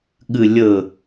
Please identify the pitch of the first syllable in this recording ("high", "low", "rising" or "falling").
low